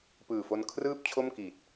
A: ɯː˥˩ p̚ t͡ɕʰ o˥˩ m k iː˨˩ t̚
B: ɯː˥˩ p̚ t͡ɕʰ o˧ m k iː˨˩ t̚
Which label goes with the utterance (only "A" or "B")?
A